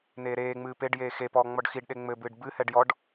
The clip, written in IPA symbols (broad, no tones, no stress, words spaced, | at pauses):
neːɾeːŋ͡mɨː peɖjeː xepɔː ŋ͡mɔɖxiɖɗe ŋ͡mɘbɨːɖ bɨhɛɖ jɔɖ